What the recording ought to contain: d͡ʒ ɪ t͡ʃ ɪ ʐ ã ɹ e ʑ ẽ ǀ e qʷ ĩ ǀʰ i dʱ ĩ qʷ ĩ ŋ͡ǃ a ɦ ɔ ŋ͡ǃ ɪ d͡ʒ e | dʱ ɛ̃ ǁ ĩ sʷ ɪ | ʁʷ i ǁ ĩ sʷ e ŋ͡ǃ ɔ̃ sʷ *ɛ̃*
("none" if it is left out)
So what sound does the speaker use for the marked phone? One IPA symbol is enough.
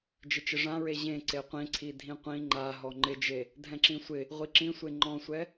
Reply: ɛ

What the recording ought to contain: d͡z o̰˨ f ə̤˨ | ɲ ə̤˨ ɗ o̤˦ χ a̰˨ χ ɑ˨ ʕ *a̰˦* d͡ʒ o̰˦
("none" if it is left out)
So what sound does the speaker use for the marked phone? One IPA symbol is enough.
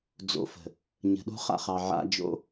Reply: a̰˦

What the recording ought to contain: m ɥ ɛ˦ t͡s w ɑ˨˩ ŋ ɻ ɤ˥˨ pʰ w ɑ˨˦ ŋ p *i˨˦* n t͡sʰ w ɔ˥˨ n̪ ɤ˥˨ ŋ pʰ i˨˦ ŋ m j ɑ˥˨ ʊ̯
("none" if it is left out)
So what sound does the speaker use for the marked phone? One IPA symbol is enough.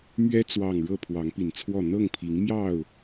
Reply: i˨˩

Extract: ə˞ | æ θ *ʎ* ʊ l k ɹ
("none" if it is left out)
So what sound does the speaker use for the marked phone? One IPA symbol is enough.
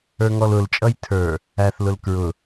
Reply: l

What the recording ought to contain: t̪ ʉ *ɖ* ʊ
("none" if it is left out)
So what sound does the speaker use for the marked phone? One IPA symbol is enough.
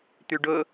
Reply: ɖ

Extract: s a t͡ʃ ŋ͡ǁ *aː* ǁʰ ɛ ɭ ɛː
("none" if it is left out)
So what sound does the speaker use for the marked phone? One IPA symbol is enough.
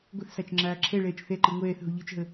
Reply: aː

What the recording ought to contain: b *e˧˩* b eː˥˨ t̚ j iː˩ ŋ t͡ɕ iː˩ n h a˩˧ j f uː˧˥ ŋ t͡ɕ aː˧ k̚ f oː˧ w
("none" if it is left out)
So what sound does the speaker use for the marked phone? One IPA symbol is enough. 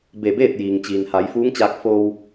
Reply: e˧˩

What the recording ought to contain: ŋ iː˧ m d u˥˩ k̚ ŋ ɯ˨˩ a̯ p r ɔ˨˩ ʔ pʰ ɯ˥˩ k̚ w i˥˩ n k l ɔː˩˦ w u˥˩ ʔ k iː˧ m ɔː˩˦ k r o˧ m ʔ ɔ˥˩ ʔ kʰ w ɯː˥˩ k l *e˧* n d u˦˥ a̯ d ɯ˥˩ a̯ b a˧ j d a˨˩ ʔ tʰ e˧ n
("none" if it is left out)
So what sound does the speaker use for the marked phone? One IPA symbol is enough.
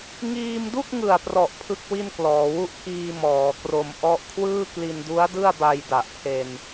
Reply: i˧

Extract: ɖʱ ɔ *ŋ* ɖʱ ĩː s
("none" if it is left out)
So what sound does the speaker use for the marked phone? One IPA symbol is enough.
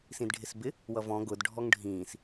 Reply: ŋ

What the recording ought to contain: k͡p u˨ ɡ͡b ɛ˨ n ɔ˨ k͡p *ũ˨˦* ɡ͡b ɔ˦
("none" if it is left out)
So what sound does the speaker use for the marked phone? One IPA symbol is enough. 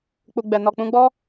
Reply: ũ˧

